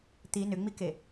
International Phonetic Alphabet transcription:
t̪i nʏŋ͡mike

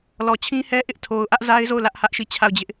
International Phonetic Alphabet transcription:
lɔ˨t͡ɕʰĩ˦hɛ˦ʔɪ˦ʔ tʰo˨ʊ̯ʔä˦ʔza˦ɪ̯zo˦˨ʊ̯ lä˦ʔhä˦ʔ ʃi˦˨t͡ɕʰa˦˨ʊ̯d͡ʑɪ˦ʔ

